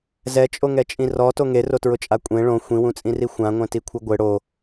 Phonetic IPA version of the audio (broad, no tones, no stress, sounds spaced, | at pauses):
z ɛ t͡ʃʼ o ŋ ɛ t͡ʃʼ ĩ r ɔ t o ŋ e r o t ɹ ʊ t͡ʃʼ a kʷʼ ẽ ɭ õ xʷ ĩ w ũ t͡sʼ ĩ r i xʷ ã ŋʷ ɛ̃ t i kʷʰ ɪ ɡʷ ɪ ɽ o